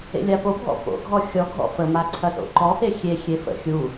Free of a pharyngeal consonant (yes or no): yes